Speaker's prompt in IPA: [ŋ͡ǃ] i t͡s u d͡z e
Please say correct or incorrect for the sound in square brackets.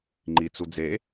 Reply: correct